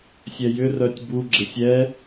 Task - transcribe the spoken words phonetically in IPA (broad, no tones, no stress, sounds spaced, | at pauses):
sʲ ɛ j ʏ r œ tʲ b u ɡ͡ǁ ɪ sʲ ɛ